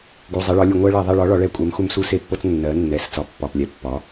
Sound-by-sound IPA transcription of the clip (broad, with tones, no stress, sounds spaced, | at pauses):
ɡ u˩˧˩ zˤ ɛ˩˥ ɭ ɒ˩˥ lʲ u˧˩˧ ŋʷ ɜ˧˥ ɭ ɜ˧˩˧ ðˤ ɛ˦˨ ɭ ɒ˧˥ ɭ ɒ˩˥ ɭ ɛ˦˨ kʷʼ ɜ˩˥ m x u˧˥ m s u˧˥ s e˧˥ pː ɤ˧˥ t͡s nː ɜ˩˥ nː ɛ˩˥ s t͡s ɒ˩˧˩ pː ɒ˩˧˩ p lʲ ɛ˩˥ pː ɒ˩˥